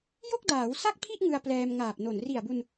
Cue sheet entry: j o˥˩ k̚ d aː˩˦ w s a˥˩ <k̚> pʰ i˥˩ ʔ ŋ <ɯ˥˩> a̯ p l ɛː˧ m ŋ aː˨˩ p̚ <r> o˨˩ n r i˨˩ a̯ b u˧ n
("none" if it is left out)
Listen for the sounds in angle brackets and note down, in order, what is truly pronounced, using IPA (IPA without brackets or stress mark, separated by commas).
k̚, ɯ˧, n